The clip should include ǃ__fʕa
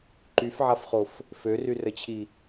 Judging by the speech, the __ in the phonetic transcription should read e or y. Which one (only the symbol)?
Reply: y